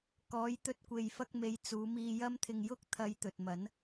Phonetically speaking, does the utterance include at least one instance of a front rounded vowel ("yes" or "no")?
no